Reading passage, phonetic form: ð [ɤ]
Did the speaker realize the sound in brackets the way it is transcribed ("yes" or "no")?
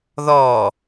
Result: no